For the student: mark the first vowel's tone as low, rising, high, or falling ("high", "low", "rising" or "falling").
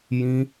high